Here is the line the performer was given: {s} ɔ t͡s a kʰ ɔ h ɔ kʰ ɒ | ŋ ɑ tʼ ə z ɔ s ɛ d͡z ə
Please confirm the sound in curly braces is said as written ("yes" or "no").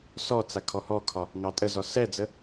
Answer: yes